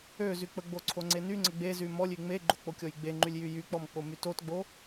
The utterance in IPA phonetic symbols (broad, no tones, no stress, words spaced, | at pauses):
øzyk͡pəɡ͡bo ǀʰoŋ͡ǀenyŋ͡ǀə ɡ͡bezy mɔlʲy ŋ͡meɡ͡ǃok͡po kʲɔjɡ͡beŋ͡ǃylʲjy jyk͡pɔmk͡pomy totɡ͡bo